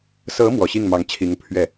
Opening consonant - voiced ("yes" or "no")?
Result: no